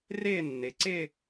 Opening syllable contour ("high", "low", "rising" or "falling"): falling